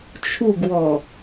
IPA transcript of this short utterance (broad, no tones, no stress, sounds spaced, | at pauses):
t͡ʃʰ u ɡ w ɔ